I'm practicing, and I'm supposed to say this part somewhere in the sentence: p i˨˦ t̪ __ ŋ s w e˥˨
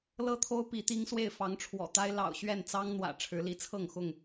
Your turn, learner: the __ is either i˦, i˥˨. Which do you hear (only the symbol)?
i˦